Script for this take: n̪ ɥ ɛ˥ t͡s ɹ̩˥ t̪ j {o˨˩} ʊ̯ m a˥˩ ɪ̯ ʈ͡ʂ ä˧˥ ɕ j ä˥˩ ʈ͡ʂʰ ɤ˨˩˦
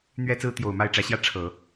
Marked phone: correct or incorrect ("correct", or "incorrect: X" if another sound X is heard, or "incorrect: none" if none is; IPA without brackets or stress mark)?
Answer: correct